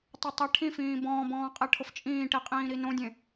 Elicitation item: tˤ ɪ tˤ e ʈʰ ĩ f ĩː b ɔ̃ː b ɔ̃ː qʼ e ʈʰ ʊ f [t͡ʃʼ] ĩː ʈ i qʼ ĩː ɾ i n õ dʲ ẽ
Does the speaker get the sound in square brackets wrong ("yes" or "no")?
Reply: no